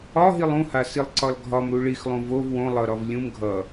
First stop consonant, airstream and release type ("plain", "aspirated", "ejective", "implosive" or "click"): click